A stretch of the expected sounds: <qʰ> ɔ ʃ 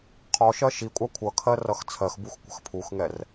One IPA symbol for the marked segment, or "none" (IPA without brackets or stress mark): qʰ